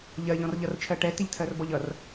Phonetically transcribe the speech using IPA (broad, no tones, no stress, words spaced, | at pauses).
ʎɜʎɔ̃rʎʌrt͡ʃʰɜ ʈɛtɪʎtʰɜrbɔʎ ʌr